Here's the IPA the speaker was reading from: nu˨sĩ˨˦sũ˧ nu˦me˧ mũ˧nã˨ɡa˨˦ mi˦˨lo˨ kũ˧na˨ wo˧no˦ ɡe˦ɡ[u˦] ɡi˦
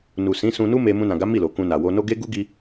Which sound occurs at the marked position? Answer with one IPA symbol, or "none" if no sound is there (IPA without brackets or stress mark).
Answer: u˦